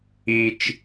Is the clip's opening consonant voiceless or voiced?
voiceless